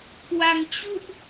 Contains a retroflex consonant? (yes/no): no